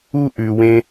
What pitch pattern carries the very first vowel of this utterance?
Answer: high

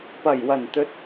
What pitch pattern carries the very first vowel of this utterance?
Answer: low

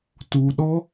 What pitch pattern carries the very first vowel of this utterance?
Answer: low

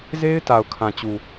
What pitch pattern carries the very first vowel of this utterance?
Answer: high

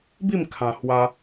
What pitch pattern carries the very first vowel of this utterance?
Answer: falling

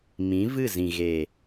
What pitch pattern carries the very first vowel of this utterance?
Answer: rising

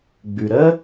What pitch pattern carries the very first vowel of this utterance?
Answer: low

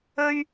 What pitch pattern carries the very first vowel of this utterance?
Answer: high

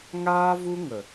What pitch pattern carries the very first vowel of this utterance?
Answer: high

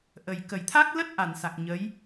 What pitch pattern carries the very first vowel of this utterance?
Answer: low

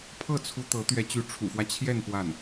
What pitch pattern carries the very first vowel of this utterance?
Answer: falling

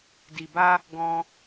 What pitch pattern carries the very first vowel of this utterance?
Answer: low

